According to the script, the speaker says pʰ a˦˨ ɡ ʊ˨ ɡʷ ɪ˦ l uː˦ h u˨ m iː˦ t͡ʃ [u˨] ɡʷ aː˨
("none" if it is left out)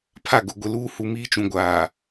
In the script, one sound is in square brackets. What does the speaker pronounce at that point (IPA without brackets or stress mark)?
ũ˨